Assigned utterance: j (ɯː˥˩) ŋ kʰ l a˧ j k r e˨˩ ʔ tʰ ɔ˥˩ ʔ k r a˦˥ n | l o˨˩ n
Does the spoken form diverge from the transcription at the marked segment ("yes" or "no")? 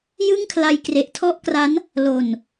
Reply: yes